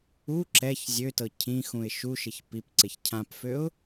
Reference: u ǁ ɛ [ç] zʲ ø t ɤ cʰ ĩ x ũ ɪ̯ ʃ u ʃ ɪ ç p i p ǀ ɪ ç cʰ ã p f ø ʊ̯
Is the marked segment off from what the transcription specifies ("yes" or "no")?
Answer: no